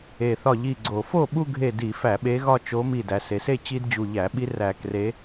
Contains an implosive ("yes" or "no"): yes